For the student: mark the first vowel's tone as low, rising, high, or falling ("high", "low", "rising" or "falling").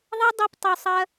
high